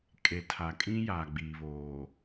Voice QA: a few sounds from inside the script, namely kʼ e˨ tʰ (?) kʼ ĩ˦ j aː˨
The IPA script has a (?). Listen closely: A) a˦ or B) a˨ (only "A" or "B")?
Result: B